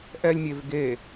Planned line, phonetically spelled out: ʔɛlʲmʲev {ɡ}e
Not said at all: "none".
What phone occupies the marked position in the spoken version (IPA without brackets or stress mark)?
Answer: ɡ